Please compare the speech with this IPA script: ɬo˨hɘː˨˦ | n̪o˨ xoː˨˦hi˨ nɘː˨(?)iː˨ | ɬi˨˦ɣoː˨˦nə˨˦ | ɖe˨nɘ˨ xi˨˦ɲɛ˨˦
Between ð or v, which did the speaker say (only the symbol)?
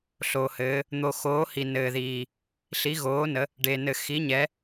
ð